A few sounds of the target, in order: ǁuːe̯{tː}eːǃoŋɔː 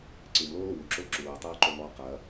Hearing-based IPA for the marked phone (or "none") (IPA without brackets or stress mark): tˤ